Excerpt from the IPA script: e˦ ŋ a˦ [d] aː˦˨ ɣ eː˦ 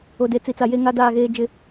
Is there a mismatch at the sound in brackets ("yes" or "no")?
no